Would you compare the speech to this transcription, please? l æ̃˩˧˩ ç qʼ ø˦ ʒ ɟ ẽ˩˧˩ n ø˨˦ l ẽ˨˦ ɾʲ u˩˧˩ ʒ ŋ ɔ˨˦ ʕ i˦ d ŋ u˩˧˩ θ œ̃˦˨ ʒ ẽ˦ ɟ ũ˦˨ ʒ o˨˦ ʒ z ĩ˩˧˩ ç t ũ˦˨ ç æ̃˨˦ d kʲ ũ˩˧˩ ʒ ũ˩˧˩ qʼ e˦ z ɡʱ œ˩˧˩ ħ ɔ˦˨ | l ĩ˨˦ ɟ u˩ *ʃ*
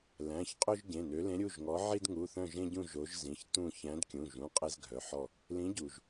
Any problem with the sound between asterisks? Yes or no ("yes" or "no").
yes